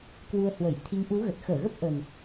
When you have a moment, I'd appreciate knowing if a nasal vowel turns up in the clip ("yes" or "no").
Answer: no